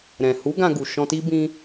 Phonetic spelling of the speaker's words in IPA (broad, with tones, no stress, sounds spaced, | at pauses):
ɾ ɛ̃˨ h u˨˦ ɡ ã˧ ɡ u˨ ʃ ɔ̃˧ t i˦ b ĩ˦